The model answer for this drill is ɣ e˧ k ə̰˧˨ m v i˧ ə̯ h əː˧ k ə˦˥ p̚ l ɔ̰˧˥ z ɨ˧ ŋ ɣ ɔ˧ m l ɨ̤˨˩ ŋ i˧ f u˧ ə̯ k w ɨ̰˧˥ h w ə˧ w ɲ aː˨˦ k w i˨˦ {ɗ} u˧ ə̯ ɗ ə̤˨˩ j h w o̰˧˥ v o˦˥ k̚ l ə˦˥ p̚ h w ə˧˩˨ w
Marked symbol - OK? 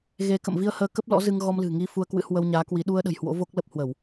yes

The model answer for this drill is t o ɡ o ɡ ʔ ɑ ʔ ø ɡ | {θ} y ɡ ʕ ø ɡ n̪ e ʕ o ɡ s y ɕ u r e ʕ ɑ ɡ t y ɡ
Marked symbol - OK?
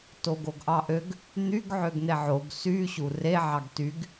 no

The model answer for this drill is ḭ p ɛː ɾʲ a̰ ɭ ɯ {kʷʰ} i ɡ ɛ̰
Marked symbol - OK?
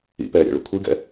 yes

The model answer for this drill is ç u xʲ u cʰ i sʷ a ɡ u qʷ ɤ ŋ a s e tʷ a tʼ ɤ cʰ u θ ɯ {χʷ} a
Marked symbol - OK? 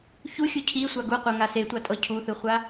yes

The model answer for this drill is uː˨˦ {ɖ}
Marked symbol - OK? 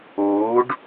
yes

